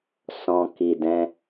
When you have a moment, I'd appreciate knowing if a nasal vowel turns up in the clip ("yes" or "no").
yes